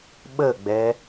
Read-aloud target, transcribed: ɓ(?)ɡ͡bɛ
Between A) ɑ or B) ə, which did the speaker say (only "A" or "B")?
B